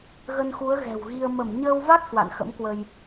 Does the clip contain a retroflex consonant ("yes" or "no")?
no